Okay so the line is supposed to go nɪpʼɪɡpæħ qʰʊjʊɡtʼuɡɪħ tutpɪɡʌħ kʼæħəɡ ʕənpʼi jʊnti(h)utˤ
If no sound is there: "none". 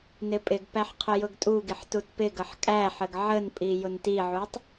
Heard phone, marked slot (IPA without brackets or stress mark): ʕ